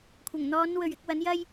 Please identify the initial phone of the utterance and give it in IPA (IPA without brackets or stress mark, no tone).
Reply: kʷʰ